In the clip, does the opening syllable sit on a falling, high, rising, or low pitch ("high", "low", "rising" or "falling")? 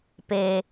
low